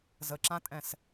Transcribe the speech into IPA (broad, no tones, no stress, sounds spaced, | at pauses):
z ə ǁ ã tʼ ɛ̃ s